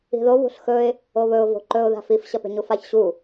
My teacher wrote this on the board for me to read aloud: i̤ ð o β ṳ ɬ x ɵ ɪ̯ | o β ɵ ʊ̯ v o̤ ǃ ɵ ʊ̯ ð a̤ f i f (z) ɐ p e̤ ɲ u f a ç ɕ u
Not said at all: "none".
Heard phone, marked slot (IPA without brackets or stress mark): ɕ